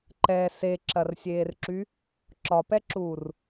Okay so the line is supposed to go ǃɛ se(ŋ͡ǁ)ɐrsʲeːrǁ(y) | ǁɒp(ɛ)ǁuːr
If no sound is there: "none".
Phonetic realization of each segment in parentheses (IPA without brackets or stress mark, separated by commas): ǁ, y, ɛ